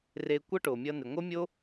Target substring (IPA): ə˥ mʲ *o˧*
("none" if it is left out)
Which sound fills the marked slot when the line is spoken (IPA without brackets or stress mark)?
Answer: o˥